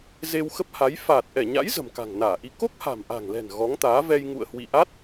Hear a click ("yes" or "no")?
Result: no